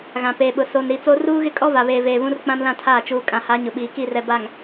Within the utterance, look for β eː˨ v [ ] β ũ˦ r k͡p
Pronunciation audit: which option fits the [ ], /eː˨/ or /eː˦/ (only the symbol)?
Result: eː˨